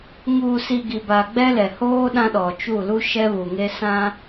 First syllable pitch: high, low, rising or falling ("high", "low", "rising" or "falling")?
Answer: low